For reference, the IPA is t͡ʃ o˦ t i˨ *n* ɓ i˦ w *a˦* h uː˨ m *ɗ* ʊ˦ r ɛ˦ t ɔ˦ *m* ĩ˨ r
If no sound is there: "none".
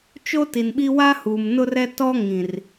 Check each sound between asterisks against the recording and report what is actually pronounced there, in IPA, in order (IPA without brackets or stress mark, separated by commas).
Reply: n, a˦, n, ŋ